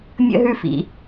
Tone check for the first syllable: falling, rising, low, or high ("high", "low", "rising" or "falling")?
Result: high